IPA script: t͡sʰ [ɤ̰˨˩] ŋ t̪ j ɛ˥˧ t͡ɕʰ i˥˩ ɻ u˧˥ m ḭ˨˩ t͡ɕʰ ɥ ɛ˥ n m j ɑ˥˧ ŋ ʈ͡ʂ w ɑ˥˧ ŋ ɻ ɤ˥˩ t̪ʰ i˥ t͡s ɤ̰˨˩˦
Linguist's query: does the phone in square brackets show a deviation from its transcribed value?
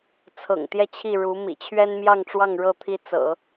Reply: no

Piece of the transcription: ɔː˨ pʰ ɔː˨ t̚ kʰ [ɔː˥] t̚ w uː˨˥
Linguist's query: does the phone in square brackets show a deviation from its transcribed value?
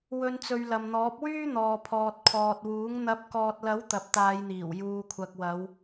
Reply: yes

